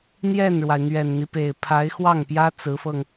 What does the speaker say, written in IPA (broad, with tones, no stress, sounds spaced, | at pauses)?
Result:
n̪ j ɛ˥˩ n ɻ w a˩ ɪ̯ n̪ ɥ ɛ˨˩ n n̪ i˦ p e˨˩ ɪ̯ pʰ a˧˥ ɪ̯ x w ɑ˥˩ ŋ p j ä˥ t͡s ɹ̩˧˥ f ɤ˧ ŋ